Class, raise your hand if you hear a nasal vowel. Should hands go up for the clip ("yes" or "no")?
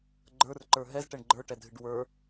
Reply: no